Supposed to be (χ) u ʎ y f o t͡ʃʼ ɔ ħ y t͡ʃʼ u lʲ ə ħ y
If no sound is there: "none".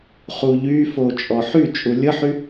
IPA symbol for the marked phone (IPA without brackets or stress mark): χ